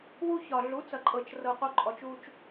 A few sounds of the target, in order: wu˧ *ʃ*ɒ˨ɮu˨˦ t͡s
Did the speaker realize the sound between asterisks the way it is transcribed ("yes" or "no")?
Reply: no